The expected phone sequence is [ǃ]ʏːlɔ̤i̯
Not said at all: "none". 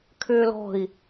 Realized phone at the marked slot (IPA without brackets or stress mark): kʰ